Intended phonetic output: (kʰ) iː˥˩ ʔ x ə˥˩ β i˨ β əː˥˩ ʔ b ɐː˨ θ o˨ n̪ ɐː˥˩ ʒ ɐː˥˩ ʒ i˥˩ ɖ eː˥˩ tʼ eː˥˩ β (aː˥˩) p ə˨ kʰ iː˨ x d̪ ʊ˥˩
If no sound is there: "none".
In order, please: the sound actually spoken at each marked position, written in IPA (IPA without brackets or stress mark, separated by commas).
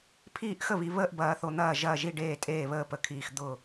pʰ, əː˥˩